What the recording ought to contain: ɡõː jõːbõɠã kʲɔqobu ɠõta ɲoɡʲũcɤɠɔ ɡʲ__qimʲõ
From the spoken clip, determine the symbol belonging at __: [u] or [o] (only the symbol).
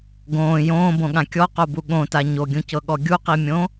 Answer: u